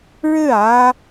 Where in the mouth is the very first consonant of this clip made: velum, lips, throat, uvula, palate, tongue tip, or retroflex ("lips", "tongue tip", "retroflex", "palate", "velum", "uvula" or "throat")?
retroflex